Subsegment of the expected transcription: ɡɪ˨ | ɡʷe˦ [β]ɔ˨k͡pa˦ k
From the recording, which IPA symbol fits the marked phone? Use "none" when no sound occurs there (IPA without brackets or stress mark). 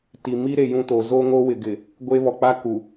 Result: β